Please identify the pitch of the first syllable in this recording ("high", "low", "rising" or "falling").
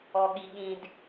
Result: low